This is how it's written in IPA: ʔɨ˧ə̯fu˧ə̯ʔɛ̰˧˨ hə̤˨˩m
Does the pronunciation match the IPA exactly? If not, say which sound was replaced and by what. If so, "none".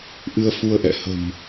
none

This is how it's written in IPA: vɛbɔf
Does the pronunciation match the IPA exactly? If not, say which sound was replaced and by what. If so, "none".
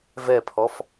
b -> pʰ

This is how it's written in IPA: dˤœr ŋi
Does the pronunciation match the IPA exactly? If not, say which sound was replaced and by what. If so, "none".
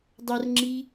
ŋ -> ŋ͡ǁ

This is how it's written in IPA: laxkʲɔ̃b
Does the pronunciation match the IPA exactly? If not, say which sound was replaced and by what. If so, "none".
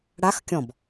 l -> ɽ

